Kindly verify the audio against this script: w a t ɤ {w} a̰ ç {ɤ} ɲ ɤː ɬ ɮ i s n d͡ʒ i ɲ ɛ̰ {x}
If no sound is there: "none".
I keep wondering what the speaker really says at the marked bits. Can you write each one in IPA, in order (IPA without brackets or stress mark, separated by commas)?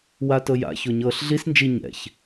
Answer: j, o, ç